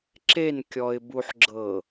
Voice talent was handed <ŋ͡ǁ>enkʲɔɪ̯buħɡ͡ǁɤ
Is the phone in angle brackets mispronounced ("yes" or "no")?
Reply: yes